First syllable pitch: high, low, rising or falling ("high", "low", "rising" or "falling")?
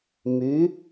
rising